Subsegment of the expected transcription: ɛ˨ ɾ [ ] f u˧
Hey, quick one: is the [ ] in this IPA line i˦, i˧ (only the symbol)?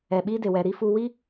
i˦